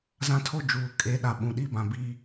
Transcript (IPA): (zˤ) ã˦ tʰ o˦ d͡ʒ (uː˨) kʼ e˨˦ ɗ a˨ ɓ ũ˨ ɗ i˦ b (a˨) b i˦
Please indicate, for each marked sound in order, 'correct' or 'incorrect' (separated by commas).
incorrect, correct, incorrect